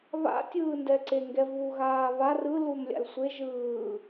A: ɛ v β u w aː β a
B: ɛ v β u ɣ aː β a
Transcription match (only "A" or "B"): B